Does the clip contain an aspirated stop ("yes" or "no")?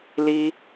no